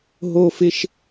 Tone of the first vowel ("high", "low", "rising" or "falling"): high